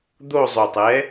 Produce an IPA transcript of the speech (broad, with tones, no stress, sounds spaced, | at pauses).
d̪ o˥˧ zˤ o˨˩ tˤ ɛ˨˥